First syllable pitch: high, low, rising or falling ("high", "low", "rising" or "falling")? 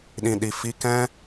low